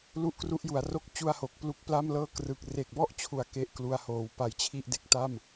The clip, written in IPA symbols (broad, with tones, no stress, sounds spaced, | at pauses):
l u˥˩ ʔ k r u˦˥ ʔ j u˩˦ a̯ r o˥˩ k̚ t͡ɕ u˥˩ a̯ h o˨˩ k̚ p l u˦˥ k̚ p l a˥˩ m l ɤː˥˩ k r ɯ˨˩ k̚ r e˨˩ k̚ b ɔ˥˩ ʔ t͡ɕʰ u˨˩ a̯ k e˥˩ ʔ k l u˧ a̯ h oː˩˦ w p a˧ j t͡ɕʰ i˥˩ ʔ d e˦˥ k̚ t a˥˩ m